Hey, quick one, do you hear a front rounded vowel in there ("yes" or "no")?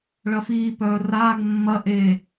yes